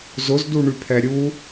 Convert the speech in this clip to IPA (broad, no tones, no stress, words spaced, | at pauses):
zʊzduɳypʰɛ ɾʲu